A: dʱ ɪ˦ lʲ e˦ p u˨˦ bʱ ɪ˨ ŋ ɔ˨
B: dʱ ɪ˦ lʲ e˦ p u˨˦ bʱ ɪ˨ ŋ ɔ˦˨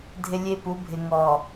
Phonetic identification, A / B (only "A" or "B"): A